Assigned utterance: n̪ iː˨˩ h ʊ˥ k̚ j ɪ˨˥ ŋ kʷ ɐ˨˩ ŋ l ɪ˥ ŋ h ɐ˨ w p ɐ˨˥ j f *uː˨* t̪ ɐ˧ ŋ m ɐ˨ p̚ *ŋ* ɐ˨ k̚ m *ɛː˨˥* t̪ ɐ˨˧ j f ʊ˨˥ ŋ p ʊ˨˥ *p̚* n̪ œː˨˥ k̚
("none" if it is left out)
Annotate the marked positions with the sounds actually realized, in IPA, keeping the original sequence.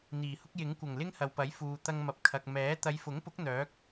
uː˨, kʰ, ɛː˨˥, k̚

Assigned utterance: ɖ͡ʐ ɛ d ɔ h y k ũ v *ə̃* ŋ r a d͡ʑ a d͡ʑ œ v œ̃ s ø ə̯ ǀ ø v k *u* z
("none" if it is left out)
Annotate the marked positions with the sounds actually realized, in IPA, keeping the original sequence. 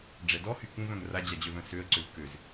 œ̃, ø

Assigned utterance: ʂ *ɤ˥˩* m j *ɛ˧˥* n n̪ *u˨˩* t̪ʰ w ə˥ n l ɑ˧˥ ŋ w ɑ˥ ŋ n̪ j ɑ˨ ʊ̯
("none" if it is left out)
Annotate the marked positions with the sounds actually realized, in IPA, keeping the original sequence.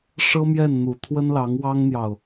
ɤ˥, ɛ˥˩, u˨˩

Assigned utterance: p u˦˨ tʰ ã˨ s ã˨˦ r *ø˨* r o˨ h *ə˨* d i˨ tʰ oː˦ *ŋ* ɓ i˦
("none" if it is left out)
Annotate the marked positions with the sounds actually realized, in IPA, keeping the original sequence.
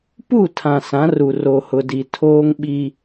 u˨, ʊ˨, ŋ

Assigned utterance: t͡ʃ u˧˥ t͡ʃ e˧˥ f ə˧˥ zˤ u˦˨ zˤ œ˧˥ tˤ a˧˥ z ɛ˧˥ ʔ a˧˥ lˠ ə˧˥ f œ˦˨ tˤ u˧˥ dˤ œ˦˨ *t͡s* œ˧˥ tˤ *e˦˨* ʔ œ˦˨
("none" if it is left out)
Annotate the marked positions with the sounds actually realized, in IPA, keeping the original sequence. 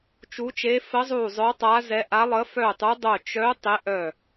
t͡ʃ, e˧˥

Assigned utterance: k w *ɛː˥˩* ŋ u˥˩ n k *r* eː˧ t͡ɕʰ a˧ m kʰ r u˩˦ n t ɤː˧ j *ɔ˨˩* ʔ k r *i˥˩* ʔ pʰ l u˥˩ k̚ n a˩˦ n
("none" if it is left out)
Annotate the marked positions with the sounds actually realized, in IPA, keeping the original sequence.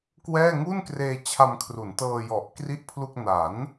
ɛː˥˩, r, ɔ˨˩, i˥˩

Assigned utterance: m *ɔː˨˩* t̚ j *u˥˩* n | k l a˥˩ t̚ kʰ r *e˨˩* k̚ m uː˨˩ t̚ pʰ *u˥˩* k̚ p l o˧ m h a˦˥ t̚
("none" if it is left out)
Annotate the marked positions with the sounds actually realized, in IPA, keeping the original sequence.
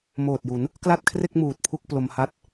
oː˨˩, u˩˦, e˥˩, u˥˩

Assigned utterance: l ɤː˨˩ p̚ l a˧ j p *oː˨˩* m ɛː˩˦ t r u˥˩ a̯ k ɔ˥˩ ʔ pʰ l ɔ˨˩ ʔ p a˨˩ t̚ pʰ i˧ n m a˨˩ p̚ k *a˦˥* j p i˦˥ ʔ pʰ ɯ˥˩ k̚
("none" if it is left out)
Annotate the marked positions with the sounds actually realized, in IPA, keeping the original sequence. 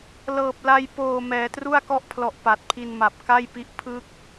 oː˨˩, a˥˩

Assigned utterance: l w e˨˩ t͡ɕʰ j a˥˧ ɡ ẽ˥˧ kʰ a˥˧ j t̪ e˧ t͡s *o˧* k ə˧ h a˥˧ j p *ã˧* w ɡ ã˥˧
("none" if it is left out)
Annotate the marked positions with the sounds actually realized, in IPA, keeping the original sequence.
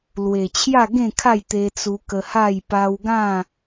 u˧, a˧

